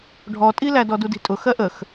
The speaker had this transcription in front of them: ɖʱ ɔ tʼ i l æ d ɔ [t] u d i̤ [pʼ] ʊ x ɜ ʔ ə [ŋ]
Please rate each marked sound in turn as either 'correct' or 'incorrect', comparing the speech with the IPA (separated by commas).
incorrect, incorrect, incorrect